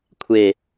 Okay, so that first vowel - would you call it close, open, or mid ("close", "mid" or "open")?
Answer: mid